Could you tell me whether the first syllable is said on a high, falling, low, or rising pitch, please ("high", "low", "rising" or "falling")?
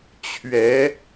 rising